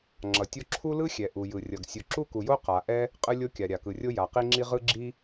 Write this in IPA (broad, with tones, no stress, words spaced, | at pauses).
ŋ͡ǁʌ˩tʲo˥ ǁʰu˥lɯ˥xʲɛ˩ ʔu˩jɯ˩ rʲʌ˩ɡ sʲu˩ǁu˥ku˩jo˥ qa˩ ʔɛ˥ | qʼɯ˥lʲo˥kʲa˩ ɾʲa˩kɯ˩rʲo˥ ja˩qi˥ŋ͡ǁi˥ ʁɯ˥ɡ͡ǁi˥